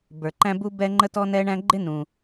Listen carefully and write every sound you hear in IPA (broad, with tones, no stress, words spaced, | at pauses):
bə˞˨ǃæ̃˥bu˥ bɛ˥ ŋ͡ǃə˦tɔ˦nɛ˦ ɳæ̃˦ɡ͡ǃɪ˥nũ˨